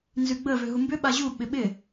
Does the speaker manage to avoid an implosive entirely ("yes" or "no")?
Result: no